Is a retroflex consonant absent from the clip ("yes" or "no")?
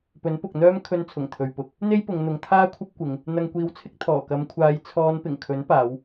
yes